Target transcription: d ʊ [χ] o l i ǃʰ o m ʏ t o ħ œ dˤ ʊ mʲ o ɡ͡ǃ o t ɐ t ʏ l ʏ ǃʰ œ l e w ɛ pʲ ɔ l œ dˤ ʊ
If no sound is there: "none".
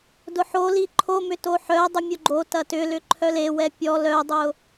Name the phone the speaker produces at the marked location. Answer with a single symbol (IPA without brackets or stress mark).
ħ